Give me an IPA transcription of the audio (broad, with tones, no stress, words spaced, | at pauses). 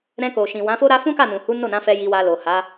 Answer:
ɾɛ̃˧ko˨ʃĩ˨ wã˨˦fo˦ɾa˦ fũ˦ka˦˨nũ˨hu˨˦ no˦˨nã˨˦fɛ˧ ji˧wa˧ lo˨ha˨˦